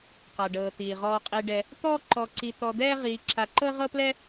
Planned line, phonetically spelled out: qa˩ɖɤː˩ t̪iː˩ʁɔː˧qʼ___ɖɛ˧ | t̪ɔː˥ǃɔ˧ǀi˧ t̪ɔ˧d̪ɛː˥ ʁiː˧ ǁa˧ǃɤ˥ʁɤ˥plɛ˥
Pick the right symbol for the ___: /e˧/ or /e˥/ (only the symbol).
e˧